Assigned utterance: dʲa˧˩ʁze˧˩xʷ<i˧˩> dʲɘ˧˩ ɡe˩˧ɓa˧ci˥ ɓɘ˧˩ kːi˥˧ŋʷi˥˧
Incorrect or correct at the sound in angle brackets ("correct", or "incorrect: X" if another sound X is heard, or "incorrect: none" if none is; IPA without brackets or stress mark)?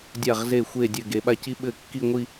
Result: incorrect: e˧˩